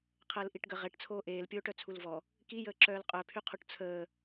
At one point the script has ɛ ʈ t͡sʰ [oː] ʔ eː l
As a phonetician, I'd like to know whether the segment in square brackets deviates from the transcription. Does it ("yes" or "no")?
no